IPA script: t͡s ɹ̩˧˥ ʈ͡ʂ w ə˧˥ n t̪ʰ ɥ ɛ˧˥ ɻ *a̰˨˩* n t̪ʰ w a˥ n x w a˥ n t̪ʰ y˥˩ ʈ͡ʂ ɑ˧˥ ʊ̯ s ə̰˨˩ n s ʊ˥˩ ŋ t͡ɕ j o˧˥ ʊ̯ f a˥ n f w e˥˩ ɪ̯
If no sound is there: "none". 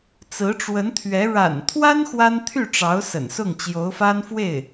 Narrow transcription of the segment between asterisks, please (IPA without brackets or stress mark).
a̰˨˩